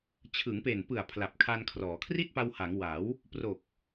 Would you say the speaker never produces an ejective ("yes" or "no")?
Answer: yes